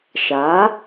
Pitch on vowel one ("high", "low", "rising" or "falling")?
rising